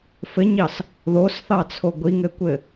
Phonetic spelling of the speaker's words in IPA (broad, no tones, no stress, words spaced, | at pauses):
fɘɲɑs | ðosθɑt͡sʰo ɡʷiŋɘkʷɘ